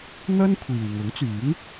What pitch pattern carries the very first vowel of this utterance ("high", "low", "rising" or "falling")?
high